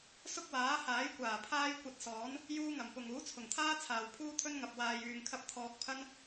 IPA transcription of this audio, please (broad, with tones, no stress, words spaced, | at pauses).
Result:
sʊ˥k̚waː˨˥haː˨˥jkʷaː˨˩ pʰaː˥jkʷɐ˧t̚sɔː˨˥n | juː˥ŋɐ˨˩mpʊ˨ŋ uː˨˥t͡sʰʊ˨˩ŋt̪ʰaː˥ t͡sʰaː˨wpʰuː˥t̪ʰɵ˥nŋɐ˨p̚ waː˨jyː˨ŋkʰɐ˧p̚ t̪ʰɔː˧k̚pʰɐ˥n